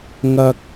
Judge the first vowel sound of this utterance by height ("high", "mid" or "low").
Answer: low